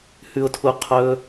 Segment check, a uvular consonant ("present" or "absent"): present